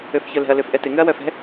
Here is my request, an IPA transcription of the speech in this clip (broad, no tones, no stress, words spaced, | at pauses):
øfçœlɛ̤ɐ̯ løfʔɛtɪ ŋʏɐ̯wœfɛ̤